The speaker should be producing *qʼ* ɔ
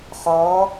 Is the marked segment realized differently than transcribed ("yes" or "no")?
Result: yes